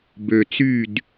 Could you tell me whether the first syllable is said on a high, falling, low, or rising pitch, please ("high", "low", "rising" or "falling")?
low